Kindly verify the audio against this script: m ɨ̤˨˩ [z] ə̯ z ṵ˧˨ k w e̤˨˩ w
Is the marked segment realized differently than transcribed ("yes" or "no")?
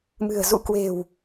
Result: yes